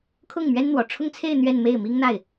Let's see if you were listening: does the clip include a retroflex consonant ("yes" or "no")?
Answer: yes